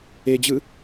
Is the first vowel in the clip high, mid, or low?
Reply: mid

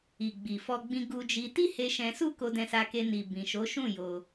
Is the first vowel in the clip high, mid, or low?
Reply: high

